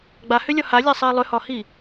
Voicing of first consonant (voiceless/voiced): voiced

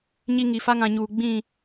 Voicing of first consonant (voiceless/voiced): voiced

